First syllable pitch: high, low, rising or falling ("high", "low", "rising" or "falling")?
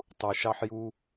low